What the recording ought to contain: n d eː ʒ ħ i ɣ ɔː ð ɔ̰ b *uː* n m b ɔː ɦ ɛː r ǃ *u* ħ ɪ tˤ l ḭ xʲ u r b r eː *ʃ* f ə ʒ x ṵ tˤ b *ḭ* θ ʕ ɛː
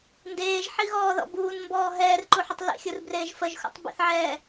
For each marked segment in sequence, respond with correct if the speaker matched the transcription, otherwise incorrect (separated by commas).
correct, correct, incorrect, correct